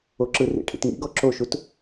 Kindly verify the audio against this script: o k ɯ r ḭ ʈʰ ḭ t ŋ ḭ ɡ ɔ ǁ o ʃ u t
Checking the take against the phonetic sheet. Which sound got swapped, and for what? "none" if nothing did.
k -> ǁ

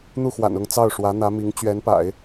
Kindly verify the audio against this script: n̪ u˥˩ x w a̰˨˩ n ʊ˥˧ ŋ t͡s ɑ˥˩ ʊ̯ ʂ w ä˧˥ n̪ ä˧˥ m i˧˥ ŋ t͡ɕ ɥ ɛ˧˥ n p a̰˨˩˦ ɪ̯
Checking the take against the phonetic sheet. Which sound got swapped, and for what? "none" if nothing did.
none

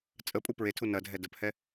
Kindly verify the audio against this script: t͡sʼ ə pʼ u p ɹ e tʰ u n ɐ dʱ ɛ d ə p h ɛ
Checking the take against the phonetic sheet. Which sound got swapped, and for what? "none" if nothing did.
none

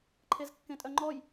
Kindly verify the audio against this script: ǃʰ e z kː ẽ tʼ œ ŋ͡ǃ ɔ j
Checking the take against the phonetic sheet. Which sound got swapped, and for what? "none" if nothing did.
none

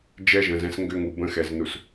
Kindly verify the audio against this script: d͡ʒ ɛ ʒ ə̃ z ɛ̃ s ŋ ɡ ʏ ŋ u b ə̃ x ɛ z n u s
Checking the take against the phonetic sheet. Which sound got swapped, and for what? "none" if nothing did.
none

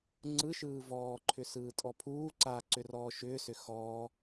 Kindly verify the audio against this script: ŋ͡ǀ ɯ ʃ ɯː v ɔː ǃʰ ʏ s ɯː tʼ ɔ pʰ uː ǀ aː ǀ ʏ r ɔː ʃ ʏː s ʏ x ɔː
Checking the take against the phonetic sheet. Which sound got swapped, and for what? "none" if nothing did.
none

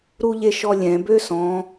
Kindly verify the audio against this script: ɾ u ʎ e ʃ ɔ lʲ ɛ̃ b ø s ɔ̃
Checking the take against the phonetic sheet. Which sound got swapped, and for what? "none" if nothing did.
none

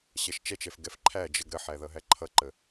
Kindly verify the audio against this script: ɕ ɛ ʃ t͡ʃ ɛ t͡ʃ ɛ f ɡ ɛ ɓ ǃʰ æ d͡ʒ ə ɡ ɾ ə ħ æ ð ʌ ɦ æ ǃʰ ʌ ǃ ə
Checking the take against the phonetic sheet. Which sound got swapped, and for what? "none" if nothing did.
ɓ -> f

